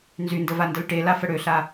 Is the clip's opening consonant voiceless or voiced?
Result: voiced